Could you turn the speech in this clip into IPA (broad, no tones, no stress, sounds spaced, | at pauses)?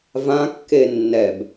v ã kː e nː ɛ b